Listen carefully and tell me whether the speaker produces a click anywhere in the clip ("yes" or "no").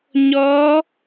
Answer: no